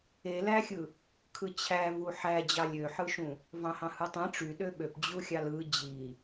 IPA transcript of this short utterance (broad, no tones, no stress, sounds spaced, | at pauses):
e l æ xʲ ɯ | kʰ ɯ t͡ɕʰ æ v u ħ æ d͡ʑ ɑ lʲ ø ħ ɯ ʃ ũ | v ɑ̃ h ɑ̃ h ɯ tˤ ẽ ʈ͡ʂ y ɗ ø ɓ ø p d͡ʑ u xʲ ɑ l ɯ d͡ʑ i